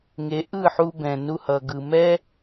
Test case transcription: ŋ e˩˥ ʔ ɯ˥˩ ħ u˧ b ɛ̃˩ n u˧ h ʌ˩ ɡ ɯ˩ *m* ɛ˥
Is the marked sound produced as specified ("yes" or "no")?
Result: yes